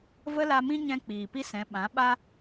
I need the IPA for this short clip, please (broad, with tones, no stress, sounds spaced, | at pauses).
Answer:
v ə˦ l a˧ m ĩ˦ ɲ ɛ̃˧ k͡p iː˨ p i˦ s ɛ̃˨˦ ɓ ã˨˦ ɓ a˦